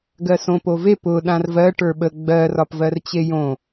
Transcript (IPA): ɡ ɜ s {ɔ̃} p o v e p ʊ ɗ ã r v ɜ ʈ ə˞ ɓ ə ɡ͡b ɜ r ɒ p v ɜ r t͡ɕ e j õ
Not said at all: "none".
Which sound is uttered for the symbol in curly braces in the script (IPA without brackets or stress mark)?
õ